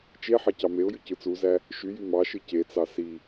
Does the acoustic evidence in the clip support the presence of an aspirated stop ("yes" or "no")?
no